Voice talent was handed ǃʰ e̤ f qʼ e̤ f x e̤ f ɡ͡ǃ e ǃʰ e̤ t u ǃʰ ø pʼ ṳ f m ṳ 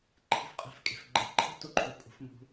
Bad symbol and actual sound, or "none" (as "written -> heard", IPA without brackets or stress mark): x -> kʼ